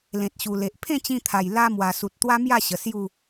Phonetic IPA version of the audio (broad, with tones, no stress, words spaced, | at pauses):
lẽ˨t̚ɕu˨˩le˨ʔ pʰẽ˥˧t͡ɕĩ˧t̪ʰa˨˩j la˧ mwa˨˩su˨t̚ t̪wa˦mja˥˧ɕə˨˩ sju˥˧